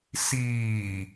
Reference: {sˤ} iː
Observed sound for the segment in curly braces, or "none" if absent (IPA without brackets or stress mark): s